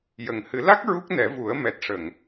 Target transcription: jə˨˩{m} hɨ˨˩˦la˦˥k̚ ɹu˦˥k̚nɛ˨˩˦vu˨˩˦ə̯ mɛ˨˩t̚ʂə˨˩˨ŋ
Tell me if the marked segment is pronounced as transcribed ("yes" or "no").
no